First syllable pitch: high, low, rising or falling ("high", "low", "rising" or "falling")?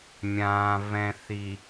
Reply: low